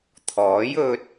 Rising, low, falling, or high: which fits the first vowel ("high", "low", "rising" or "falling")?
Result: rising